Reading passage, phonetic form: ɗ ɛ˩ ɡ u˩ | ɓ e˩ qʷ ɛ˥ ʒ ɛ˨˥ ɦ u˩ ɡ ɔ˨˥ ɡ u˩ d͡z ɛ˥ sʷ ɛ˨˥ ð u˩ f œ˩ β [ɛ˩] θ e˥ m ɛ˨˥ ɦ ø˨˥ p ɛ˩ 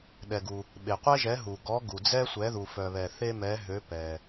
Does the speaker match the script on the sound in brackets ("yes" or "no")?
yes